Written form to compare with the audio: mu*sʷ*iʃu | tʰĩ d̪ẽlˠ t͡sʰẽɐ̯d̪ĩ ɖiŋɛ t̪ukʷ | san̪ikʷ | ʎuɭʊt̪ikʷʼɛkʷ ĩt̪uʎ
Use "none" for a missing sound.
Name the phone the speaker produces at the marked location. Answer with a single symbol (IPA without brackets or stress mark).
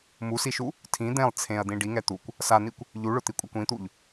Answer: s